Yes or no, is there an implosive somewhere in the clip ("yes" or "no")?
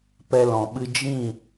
yes